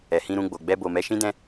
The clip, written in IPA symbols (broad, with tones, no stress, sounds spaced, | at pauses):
ɛ˨ h ĩ˧ ɾ ũ˧ ɡ͡b o˨ ɡ͡b ɛ˧ b o˨ m ɛ˨˦ ʃ ĩ˦ d ɛ̃˦